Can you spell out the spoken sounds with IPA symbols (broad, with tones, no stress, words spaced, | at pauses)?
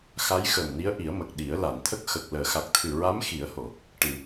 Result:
xa˧˥jxə˨˩mni˧˥ə̯ ʔi˨˩˦ə̯mə˨˩k̚ ɗi˨˩˦ə̯la˨˩˨nt̪ʰə˦˥k̚ xə˨˩k̚ ləː˨˩˨xa˨˩k̚t̪ʰɨ˨˩ ɹa˧˥m xi˨˩˦ə̯ho˨˩˨ | ʈɨ˨˩˨